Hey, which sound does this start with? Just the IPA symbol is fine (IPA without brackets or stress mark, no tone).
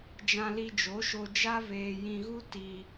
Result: d͡ʒ